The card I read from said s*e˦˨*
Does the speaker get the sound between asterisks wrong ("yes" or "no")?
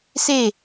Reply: no